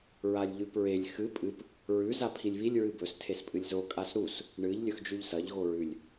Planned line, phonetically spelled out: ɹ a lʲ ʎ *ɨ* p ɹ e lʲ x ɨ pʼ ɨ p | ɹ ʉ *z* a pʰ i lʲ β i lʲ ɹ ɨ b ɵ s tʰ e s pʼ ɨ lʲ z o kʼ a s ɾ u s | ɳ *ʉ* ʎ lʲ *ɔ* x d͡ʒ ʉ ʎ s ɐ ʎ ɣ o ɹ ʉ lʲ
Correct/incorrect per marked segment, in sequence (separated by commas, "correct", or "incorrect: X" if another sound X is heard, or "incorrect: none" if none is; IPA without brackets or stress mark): incorrect: ʉ, correct, incorrect: ɨ, incorrect: ɵ